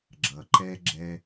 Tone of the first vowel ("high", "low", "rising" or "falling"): low